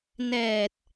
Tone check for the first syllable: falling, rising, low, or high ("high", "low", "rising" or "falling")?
low